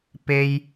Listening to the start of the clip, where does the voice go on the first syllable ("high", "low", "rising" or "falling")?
high